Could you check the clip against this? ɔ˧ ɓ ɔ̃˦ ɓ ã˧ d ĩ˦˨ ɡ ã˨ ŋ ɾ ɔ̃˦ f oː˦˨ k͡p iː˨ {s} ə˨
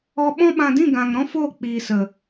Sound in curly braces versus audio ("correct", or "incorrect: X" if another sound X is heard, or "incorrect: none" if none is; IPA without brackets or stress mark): correct